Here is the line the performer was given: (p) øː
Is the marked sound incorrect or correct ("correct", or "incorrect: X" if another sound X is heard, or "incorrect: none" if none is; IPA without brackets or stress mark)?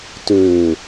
incorrect: t